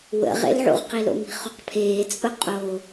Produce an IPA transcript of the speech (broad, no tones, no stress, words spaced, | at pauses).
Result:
wə̰ʁḛlʕṵʁqi lo̰mi̤χuqpʰeː t͡sʼʊqʼo